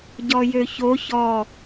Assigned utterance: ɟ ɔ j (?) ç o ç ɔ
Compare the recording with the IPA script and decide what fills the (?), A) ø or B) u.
A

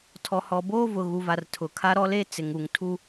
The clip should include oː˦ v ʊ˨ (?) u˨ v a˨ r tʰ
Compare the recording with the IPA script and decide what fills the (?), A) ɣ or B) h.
A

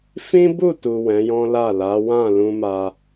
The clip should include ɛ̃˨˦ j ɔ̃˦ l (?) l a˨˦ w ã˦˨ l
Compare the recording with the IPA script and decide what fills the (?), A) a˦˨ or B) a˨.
A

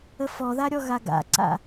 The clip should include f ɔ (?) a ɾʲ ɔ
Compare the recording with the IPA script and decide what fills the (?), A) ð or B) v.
A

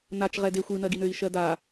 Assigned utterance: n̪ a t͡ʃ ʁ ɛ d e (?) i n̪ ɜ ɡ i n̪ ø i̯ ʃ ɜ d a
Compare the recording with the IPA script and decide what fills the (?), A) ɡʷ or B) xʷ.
B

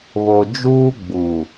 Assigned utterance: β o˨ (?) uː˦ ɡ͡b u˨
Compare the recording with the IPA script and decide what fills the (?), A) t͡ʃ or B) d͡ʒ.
B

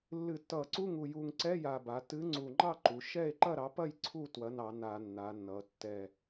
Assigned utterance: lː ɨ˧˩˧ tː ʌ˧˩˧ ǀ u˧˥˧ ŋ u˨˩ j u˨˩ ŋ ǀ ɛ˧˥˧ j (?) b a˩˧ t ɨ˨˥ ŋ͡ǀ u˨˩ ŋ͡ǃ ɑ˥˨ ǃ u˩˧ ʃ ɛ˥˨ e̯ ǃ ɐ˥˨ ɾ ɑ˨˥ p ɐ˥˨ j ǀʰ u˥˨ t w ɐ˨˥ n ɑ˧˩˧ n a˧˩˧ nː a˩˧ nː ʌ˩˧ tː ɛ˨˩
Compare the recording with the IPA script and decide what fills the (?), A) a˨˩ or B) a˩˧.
A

